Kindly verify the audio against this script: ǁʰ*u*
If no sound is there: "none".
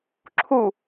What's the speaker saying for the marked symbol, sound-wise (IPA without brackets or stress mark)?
u